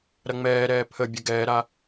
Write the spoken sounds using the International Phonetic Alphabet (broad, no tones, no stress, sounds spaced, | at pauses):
ɾ ɐ ŋ͡m ɛː ɾ ɛː pʰ ə bʲ ə ɡ ɛː ɾ a